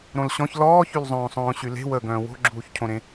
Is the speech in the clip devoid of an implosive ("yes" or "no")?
yes